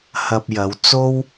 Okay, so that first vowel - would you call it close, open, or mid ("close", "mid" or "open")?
open